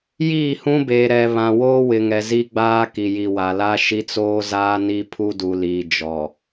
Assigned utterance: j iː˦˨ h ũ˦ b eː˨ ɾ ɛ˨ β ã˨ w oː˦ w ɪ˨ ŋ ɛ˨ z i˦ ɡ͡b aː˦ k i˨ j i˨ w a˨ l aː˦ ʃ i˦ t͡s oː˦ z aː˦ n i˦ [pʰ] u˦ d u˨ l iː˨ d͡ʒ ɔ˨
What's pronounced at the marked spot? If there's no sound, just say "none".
pʰ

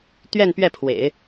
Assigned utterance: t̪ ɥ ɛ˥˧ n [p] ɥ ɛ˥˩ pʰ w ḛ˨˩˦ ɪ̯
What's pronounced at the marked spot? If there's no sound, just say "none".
p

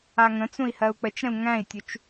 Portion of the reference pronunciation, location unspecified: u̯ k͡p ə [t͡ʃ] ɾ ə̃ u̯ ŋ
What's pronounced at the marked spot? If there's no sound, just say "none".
t͡ʃ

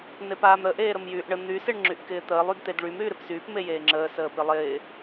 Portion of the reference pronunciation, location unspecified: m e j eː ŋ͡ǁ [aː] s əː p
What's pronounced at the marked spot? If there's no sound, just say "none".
əː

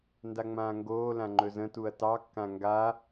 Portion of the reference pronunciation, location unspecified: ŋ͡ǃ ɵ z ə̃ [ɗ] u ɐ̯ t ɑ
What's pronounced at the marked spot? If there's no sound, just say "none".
t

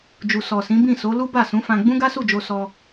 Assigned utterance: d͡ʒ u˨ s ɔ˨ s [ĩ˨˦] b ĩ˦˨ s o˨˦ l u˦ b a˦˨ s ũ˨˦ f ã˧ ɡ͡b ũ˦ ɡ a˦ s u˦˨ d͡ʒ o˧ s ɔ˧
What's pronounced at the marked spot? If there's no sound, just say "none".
ĩ˨˦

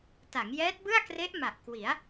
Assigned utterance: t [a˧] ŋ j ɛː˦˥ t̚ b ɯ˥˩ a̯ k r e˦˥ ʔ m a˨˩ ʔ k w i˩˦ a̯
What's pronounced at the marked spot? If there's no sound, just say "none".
a˩˦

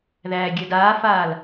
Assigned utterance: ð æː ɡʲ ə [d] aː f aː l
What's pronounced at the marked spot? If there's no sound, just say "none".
d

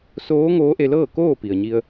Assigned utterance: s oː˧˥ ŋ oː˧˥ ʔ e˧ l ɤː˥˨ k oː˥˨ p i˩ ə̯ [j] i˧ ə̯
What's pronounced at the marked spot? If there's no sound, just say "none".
ɲ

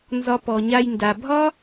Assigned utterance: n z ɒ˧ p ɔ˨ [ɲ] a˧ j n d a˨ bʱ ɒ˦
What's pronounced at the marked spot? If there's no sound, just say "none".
ɲ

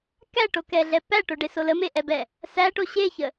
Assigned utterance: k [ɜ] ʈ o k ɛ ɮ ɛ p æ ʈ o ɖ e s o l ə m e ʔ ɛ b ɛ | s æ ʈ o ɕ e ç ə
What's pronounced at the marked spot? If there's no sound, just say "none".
æ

